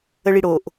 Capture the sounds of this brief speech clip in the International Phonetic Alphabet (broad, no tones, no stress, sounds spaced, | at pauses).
ə ɭ i ɽ o ʔ